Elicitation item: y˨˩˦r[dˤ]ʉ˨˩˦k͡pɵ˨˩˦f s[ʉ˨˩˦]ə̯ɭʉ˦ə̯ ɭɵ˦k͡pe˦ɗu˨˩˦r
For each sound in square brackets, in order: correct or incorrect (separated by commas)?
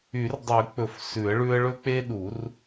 correct, correct